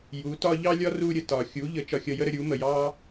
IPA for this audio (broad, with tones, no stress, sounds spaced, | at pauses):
j u˨˦ t ɒ˦ ʎ ɑ˦ lʲ ɒ˦ r u˧ ɾʲ ə˨ t ɒ˨ xʲ u˨˦ ʎ ə˨˦ t͡ʃ ɒ˧ xʲ ʌ˧ j ə˦ ɾ ə˧ ɾʲ u˨˦ m ə˨ j ɑ˦